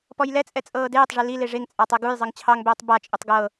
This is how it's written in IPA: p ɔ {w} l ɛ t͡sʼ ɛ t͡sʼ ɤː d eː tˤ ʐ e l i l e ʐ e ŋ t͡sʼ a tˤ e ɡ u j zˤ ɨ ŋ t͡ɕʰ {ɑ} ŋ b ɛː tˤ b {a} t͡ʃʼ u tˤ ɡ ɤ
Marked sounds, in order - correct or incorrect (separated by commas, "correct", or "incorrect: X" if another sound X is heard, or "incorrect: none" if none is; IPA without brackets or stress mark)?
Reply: incorrect: j, correct, correct